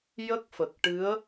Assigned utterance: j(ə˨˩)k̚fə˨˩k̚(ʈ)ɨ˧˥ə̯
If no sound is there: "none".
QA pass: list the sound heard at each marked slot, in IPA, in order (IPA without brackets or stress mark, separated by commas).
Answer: ə˦˥, ʈ